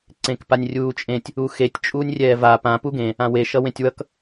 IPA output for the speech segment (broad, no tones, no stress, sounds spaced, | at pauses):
ǀ ẽ k p a nʲ rʲ uː t͡ʃʼ ẽ tʲ | u x e tʲ t͡ʃʼ uː nʲ rʲ ɛː v a p ã p u ɡ ẽ | ã w e ʃ ʌ w ẽ tʲ w ʌ k